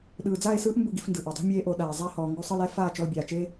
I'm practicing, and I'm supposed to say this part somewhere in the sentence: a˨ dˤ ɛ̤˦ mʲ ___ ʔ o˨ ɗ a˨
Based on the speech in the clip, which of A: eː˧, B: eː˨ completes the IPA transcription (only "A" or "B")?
A